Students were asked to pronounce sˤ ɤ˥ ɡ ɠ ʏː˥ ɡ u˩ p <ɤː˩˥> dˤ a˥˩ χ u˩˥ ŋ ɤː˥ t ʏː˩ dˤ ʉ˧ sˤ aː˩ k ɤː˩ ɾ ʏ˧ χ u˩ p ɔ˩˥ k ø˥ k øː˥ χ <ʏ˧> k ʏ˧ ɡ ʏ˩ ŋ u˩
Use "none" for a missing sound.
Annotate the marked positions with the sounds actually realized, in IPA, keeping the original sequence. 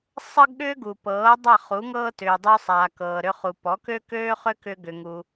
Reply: ɤː˩˥, ʏ˥

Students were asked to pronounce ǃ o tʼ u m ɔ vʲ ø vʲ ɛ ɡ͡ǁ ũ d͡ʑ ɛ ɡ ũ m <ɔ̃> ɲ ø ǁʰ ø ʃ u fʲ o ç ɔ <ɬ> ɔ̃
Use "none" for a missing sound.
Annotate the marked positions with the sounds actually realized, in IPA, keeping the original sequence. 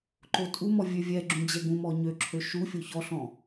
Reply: ɔ, ɬ

